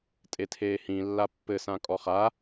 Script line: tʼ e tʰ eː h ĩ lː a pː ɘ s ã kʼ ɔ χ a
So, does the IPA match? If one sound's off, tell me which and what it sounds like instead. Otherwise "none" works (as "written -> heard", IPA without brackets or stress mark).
none